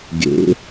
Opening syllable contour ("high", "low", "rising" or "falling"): rising